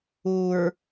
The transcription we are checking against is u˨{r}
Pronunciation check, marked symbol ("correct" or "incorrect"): incorrect